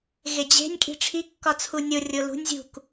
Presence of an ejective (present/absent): present